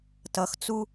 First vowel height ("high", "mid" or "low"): mid